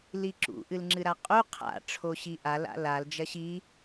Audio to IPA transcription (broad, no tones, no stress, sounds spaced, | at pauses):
l i ǁ ṵ ʔ ɨ l ŋ͡ǁ ɨ ɾ a qʼ u qʰ a̰ ʈ͡ʂʰ o ɕ i ʔ a l a̰ l a l d͡ʒ ɐ ɕ i